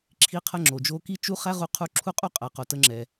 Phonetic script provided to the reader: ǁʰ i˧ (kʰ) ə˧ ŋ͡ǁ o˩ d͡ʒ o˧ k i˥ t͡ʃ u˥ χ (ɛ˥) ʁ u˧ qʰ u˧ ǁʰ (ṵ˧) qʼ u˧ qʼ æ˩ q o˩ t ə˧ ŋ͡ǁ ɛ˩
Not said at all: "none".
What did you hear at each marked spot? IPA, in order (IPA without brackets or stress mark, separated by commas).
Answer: qʰ, æ˥, u˧